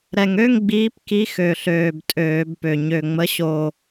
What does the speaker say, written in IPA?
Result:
ɾ ɛ˨˩ ŋ ø˧˥˧ ŋ ɡ͡b iː˨˦ p k i˨˦ x ø˨˩ ɬ øː˨˩ b tʼ øː˧˩˧ b p ø˨˩ ɲ ø˨˩ ŋ͡m ə˨˦ ɕ o˨˩

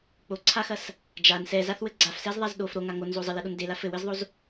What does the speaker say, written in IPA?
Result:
k͡p o ǀʰ a x ɐ s | d͡ʒ a n s ɛ z a θ w ɘ ɡ͡ǀ a f s ɛ z ðˤ a z ɗ o f ɾ o ŋ a ŋ o n z o zˤ ɘ l ɛ ɗ o n d e l a f ɘ w ɘ z ðˤ o z

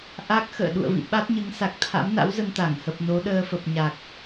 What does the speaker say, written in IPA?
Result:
ʔ a˦˥ k̚ x ə̰ː˧˨ ɗ ṵ˧˨ ə̯ v ḭ˧˨ ɓ a˦˥ t̚ ɲ ɨ˨˦ ŋ s a˨˩ k̚ t̪ʰ a̰˧˥ m n a̰˧˥ w z ə˧ n t̪ a˧˩ ŋ h ə˨˩ p̚ n o˨˦ ɗ əː˧ f ə˨˩ p̚ ɲ a˨˩ k̚

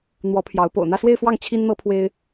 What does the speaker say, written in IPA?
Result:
n̪ w ɔ˧˥ pʰ j ɑ˧˥ ʊ̯ p o̰˨˩ ʊ̯ n̪ ä˥˧ s w e˥˧ ɪ̯ f w ɑ˥˩ ŋ t͡ɕʰ i˥ n n̪ ɤ˥ pʰ w e˥ ɪ̯

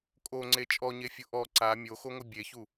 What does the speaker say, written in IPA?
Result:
kʼ o ŋ͡ǀ e t͡ʃʼ ɔ ɲ e fʲ ʊ ʔ ɔ ǀ a mʲ o x o ŋʷ ɪ bʲ e ç u

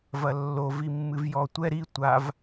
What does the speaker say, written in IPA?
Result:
v ɐ lː o v i mː ɨ v j ɔ tʷ ɛ ɾ i tʷ a v

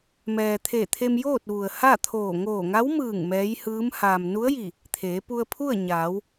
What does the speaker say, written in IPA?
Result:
m ɛː˩ t̪ʰ e˧˩ t̪ʰ e˧ m j oː˥˨ t̚ ʋ u˩ ə̯ h a˥˨ t̪ʰ oː˧˩ ŋ oː˧˩ ŋ a˧˥ w m ɯː˧˩ ŋ m ɛː˧˥ j h ɯː˧˥ m h aː˩ m n u˧˥ ə̯ j i˧˩ | t̪ʰ eː˩˧ p u˧ ə̯ pʰ u˥˨ ə̯ ɲ aː˩˧ w

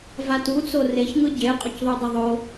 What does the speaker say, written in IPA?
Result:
v a t u t͡s o r e ç ŋ ɯ ɟ e qʼ o c ðˤ u dˤ ə ðˤ o

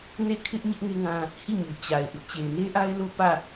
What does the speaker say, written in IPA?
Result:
n e˦˨ kʰ ɪ˦ ʔ ɲ ɪ˦ ʔ ŋ e˦ ŋ ã˦ | h i˦˨ ɲ u˨ t͡ɕ a˨ ɪ̯ ʔ ɪ˦ ʔ t͡ɕ e˨ ɪ̯ n e˦ ʔ a˦ ɪ̯ l o˦ p ä˦˨

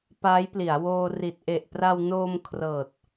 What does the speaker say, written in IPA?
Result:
p aː˦˥ j p l i˩˦ a̯ w oː˧ r i˨˩ t̚ ʔ e˨˩ ʔ p r a˧ w n oː˧ m kʰ r ɤː˨˩ t̚

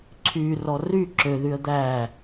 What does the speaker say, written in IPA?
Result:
ǀʰ y r ɔ r y ǁ ø ð y ə̯ d̪ æ

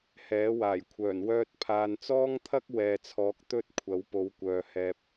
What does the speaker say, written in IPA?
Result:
h ɛː˨˥ w aː˨˩ j kʷʰ œː˨˩ n w œː˧ t̚ pʰ aː˨ n t͡s ɔː˥ ŋ t̪ʰ ɐ˥ k̚ w ɛː˨ t͡sʰ ɔː˨˥ k̚ t̪ ɵ˥ t̚ kʷʰ ɐ˨˥ w p o˨˧ w kʷ œː˨ h ɛː˧ p̚

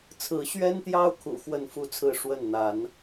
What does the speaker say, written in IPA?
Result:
t͡sʰ ɹ̩˨˦ ɕ ɥ ɛ˦ n t̪ j ɑ˦ ʊ̯ kʰ ṵ˨˩ x w ə˥˨ n f u˥˨ t͡sʰ ɹ̩˥˨ ʂ w ə˥˨ n n̪ a˨˦ n

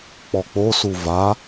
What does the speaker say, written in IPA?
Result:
k͡p ɔ k͡p o s u v a

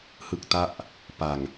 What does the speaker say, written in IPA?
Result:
h ɯ˥˩ k̚ t a˥˩ ʔ | p a˨˩ ŋ

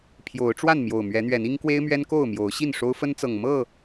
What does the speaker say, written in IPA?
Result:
pʰ j o˨˦ ʊ̯ ʈ͡ʂ w a˥˨ n m j o˨˩ ʊ̯ m ɥ ɛ˨˦ n̪ ɥ ɛ˨˦ n i˦ ŋ k w e˦ ɪ̯ m ɥ ɛ˦ n k o˥˨ ʊ̯ m j o˨˦ ʊ̯ ɕ i˥˨ n ʂ o˦ ʊ̯ f ə˦ n t͡s ɤ˨˩ ŋ m ɤ˥˨

